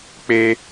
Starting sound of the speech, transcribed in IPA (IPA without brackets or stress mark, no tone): k͡p